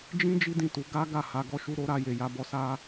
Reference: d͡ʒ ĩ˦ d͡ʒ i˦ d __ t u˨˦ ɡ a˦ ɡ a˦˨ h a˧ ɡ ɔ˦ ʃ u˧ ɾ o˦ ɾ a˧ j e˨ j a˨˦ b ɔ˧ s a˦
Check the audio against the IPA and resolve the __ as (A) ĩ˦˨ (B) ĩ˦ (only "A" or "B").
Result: A